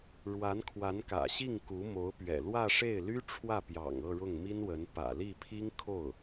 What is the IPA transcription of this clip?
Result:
ɻ w a˧˥ n kʰ w a˧˥ n k ä̰˨˩ ɕ i˥˩ ŋ k u˧˥ m o˧˥ ʊ̯ p ɥ ɛ̰˨˩ l w ä˥˧ ʂ e˥˩ ɪ̯ l y˥ ʈ͡ʂʰ w ä˥˩ p j ɑ̰˨˩ ŋ ɤ˥˧ ɻ ʊ˥˩ ŋ m i˥ n w ə˧˥ n p ä̰˨˩ l i˥˩ pʰ i˥ ŋ kʰ o˥˩ ʊ̯

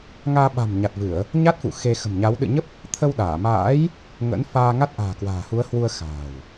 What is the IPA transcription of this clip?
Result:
ŋ aː˧ ɓ a̤˨˩ m ɲ a˨˩ t̚ v ɨ˧˩˨ ə̯ | ɲ a˦˥ t̚ f ṵ˧˨ x e˧ x ə̤˨˩ m ɲ a˨˦ w ɗ ɨ̰˧˨ ɲ ə˦˥ p̚ | t̪ʰ ə˧ w ɗ aː˧˩ m a̰ː˧˥ j | ŋ ə̰˧˥ n f aː˧ ŋ a˦˥ t̚ ʔ a̤ː˨˩ k w a̤ː˨˩ h u˨˦ ə̯ h w u˧ ə̯ x a̤ː˨˩ w

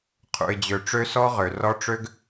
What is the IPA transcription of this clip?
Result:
qʰ ṵ˨ ɪ̯ d͡ʑ ø˨ ʈ͡ʂ ø˦ s ɔ˦ ʁ ø˨ r ɔ˦ ʈ͡ʂ ø˦ ɡ

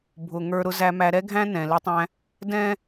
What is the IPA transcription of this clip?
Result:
bʱ ʊ˨ ŋ ə˞˨ ɾ ʊ˨ z æ˨ m æ˨ ɾ ɛ˦ ɡʱ æ̃˦ n ɛ̃˨ l ɪ˦ tˤ æ̃˦ | d ɛ̃˦

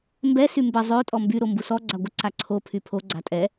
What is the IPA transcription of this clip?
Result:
m b ɛ s y m b ə zˤ ø tʼ ɔ m b y ɾ o m b u s ɔ ɡ͡ǀ a ɡʷ ə ǀ a ǀʰ o pʰ y pʰ o ɡ͡ǀ a tʼ ɛ

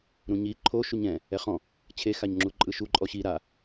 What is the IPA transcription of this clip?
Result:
ɾ ũ ɲ i ǃʰ o ʃ u ɲ ɛ̃ | ɛ χ ɔ̃ | t͡ɕʰ e x a ɲ ŋ͡ǁ u ǃʼ ɯ ʃ u ǃʼ ɔ ɕ i ɾ a

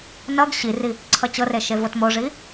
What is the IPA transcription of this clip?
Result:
n ʌ ɡ ɕ i r i | ǀʰ ʌ t͡ɕ ɤ r e ʃ e v o t m o ʐ i

